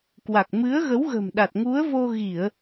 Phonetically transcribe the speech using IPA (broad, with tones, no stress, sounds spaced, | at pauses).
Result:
k w a˨˩ k̚ m ɨ˨˦ ə̯ ɣ ə˨˦ w ɣ ə̤˨˩ m ɗ a˨˩ t̚ ŋ u˨˦ ə̯ v o˧ ɣ i˧˩˨ ə̯